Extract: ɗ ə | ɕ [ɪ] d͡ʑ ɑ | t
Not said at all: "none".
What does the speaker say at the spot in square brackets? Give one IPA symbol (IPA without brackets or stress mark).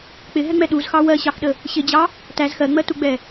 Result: ɪ